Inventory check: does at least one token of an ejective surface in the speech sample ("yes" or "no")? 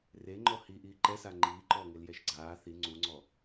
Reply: no